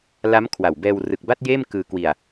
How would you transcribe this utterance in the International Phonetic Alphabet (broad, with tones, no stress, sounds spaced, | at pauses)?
l a˦˥ m kʰ w a˨˩ w b ɛː˧ w r ɯ˨˩ k̚ b a˥˩ t̚ j eː˥˩ m k ɯː˧ k w i˧ a̯